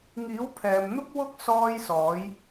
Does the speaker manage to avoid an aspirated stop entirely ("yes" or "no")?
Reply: no